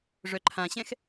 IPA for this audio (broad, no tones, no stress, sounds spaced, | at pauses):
ʐ œ ǃʰ ã ɕ ɛ̃ x